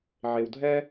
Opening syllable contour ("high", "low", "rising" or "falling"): low